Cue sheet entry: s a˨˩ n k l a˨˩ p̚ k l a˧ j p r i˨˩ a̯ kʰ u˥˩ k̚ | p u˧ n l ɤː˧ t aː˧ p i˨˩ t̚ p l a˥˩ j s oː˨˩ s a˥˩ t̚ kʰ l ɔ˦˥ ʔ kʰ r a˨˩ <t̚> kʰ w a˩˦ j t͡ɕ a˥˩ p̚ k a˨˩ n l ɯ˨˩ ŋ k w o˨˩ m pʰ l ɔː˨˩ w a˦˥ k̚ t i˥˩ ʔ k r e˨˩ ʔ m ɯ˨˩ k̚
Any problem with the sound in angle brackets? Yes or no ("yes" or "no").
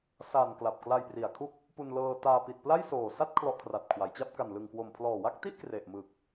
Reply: no